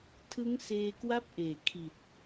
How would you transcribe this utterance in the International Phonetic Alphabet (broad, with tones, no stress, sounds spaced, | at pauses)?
tʰ ɯ˦˥ ŋ s eː˧ k w a˥˩ p̚ ʔ eː˨˩ kʰ i˨˩ t̚